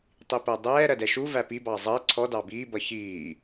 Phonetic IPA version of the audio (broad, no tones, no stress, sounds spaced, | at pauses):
tˤ i p ɜ dˤ ɛː ɾ ɜ d ɛ ʃ u v æ p i b ɑ zˤ ɜ ǀʰ ɔ d ɑ b iː b ʌ ç iː